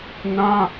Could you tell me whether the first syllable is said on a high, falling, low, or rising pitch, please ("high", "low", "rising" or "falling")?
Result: high